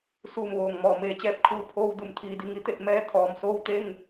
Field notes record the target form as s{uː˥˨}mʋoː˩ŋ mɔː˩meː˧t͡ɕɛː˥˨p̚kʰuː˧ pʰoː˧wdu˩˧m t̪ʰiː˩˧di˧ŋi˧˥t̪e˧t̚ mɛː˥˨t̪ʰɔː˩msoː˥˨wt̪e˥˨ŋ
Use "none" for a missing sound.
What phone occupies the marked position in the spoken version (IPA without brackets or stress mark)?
uː˧˩